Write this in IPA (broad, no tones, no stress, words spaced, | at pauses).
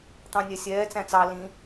t̪ɑ̃nʲɛsʲɛː t͡sæ̃t͡sɑ lĩ